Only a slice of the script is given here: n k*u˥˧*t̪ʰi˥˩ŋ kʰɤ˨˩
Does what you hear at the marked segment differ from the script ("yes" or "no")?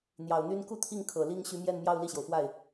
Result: no